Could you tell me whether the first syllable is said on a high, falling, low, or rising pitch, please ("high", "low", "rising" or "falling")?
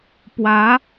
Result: rising